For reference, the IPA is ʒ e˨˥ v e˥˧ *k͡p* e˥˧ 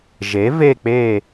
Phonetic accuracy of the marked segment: correct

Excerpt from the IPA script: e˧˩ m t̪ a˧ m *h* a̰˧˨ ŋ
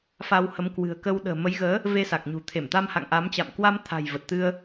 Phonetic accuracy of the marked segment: correct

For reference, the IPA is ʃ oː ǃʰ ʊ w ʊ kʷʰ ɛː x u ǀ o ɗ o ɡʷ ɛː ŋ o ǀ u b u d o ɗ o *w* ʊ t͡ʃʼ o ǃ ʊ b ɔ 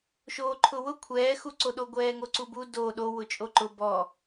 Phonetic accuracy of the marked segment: correct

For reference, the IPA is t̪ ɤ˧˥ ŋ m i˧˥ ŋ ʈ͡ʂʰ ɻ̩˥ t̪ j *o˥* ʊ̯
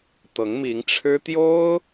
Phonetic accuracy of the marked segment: correct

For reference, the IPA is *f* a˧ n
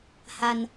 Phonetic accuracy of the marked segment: incorrect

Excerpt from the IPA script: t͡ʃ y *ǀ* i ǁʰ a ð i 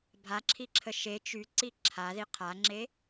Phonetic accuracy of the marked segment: correct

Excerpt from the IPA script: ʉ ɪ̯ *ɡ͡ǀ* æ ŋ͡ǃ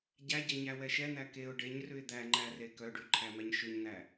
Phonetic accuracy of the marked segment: incorrect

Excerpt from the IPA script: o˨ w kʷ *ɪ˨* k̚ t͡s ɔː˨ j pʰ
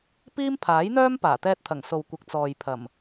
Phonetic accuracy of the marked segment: correct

